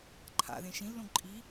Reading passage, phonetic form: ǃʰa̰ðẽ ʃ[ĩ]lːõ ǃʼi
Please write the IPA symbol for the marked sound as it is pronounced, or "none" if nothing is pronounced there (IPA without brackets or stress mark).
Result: ĩ